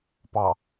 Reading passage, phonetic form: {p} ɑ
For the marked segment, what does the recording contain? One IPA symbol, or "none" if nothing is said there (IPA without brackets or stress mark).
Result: p